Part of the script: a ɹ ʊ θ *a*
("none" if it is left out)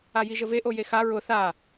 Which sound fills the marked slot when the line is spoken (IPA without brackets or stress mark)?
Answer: a